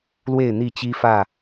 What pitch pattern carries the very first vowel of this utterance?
falling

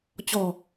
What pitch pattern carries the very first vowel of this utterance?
low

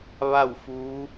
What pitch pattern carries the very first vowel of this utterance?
falling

